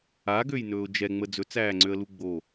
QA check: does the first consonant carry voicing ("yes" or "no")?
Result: yes